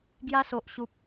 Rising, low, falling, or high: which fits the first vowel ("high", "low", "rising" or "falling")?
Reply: high